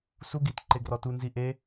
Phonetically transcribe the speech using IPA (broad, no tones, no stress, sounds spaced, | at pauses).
s u ɡ i t ǃ e ɡ r ɔ t u n z i ʔ e